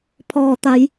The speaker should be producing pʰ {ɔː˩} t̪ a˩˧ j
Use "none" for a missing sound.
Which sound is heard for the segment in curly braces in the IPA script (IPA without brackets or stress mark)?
ɔː˩